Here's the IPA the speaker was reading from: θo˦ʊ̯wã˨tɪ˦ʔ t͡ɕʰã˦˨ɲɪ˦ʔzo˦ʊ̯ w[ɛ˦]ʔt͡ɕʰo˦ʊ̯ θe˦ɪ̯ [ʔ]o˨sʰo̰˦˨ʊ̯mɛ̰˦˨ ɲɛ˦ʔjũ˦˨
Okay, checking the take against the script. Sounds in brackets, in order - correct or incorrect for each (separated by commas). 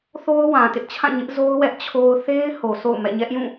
correct, incorrect